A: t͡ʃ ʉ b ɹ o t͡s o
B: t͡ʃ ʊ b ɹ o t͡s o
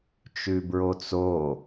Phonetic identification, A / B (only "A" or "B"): A